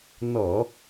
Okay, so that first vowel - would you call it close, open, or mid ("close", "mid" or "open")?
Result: mid